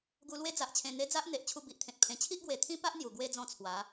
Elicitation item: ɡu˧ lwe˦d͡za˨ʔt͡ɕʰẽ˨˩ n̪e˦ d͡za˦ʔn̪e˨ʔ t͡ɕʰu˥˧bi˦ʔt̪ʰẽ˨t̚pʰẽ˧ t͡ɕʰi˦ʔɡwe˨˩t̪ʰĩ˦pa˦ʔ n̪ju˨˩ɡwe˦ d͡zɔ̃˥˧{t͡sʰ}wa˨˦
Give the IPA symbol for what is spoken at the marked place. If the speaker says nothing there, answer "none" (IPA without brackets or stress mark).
t͡sʰ